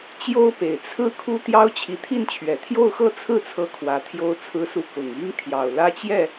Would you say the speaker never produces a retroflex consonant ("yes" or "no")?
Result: yes